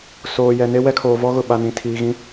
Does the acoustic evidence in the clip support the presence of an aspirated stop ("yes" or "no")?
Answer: yes